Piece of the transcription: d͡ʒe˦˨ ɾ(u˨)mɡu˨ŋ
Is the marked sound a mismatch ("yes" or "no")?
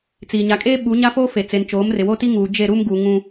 yes